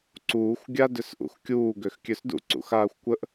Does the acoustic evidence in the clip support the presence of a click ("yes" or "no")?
yes